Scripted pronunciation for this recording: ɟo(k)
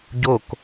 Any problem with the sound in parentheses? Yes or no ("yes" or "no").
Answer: no